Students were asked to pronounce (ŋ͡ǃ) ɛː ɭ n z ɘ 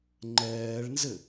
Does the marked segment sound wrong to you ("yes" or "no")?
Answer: no